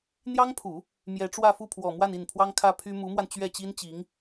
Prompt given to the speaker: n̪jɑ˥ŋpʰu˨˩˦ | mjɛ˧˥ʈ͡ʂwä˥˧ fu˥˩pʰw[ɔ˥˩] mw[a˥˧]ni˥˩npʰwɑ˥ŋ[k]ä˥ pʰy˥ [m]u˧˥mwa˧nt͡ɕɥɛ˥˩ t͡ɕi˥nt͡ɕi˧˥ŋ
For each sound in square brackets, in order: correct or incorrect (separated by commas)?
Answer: incorrect, correct, incorrect, correct